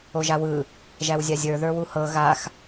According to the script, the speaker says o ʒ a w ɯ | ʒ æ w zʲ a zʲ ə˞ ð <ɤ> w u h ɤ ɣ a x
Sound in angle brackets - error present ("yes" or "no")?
yes